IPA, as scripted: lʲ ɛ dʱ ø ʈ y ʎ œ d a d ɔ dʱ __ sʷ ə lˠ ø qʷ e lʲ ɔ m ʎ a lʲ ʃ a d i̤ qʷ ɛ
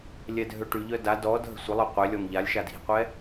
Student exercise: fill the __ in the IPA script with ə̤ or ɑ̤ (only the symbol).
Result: ə̤